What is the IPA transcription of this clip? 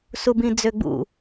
s u b ĩ d͡z ø ɡ͡b ṵ

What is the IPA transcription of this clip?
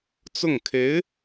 t͡s ʊ˥˩ ŋ kʰ e˧˥ ɪ̯

